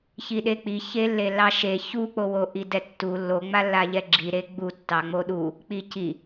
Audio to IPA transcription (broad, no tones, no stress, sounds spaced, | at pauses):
ç i ɗ e k͡p i ç e lː e lː ɑ ʃ e ç u k͡p o w o ʔ i d ɛ tː u lː o ŋ͡m a lː a ʎ ɛ ɡ͡ǁ i ɾ e ɡ͡b u tː ɑ ŋ͡m o ɗ u | k͡p i c i